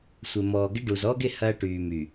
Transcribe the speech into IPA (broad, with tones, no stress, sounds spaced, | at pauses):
sʷ ɪ˨ m ɔː˨ ɡ ɪ˦ ɖ u˨ z ɔː˦ ɡ ɪ˦˨ h ɐː˦ ʈ yː˨ m y˨